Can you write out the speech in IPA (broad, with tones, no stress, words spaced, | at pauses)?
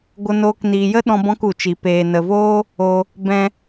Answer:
ɡʷə˦noː˦k niː˧jə˦ ɗɔ̃˦bɔ̃˦ku˧t͡ʃi˧ peː˧nə˧voː˦ | o˧ | bɛ̃˦